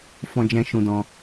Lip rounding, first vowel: rounded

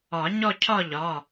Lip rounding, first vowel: rounded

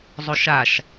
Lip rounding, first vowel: rounded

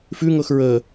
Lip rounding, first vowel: rounded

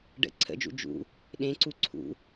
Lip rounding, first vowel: unrounded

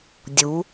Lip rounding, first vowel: rounded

